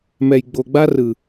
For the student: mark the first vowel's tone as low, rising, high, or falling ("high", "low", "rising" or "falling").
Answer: low